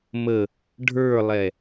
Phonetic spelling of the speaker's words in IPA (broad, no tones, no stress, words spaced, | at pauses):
mə | ɖʱə˞lˠɛ